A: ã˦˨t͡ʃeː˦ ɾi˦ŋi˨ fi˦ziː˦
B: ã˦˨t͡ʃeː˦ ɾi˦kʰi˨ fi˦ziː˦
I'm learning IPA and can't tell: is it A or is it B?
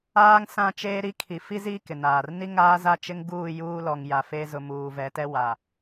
B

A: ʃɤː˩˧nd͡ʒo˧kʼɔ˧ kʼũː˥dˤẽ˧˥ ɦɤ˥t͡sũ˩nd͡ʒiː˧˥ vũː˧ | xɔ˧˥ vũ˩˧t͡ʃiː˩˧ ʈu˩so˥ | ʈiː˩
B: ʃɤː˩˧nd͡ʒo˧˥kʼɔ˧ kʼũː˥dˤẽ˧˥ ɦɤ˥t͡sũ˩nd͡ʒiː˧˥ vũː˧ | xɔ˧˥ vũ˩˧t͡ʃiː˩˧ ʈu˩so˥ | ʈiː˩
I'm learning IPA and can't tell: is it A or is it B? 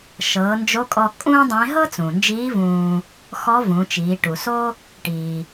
B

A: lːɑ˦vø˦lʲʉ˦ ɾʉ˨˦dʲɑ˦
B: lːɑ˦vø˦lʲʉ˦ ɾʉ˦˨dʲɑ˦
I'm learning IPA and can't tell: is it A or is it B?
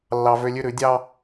A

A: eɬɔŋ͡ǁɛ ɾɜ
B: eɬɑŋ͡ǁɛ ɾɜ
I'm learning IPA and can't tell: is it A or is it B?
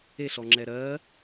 A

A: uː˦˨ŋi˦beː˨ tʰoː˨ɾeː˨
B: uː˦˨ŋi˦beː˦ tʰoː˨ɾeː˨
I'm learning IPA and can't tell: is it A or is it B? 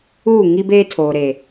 B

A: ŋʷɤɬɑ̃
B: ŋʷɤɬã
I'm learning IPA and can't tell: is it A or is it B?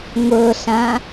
B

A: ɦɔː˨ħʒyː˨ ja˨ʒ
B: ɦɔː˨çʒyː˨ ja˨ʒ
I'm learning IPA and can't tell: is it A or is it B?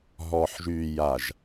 A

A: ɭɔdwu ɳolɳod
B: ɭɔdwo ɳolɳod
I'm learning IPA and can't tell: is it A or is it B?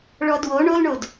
B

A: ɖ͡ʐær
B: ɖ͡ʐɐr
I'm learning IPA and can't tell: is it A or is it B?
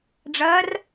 B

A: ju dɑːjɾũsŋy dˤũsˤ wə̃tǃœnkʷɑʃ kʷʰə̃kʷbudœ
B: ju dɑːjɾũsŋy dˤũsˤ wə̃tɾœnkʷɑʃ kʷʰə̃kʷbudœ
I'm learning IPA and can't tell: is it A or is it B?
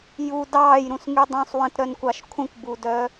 B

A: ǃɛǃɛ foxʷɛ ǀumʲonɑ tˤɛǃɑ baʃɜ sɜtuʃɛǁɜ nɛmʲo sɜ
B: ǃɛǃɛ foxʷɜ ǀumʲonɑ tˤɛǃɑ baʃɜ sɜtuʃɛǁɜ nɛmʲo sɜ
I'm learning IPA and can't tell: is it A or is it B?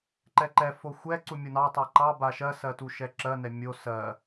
A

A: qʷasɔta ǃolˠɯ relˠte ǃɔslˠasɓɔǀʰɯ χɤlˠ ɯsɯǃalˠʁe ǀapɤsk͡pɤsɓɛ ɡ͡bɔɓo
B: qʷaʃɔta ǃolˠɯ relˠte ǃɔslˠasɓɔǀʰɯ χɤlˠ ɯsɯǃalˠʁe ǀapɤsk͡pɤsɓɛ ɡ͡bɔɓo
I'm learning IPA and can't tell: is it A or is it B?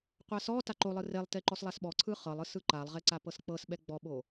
A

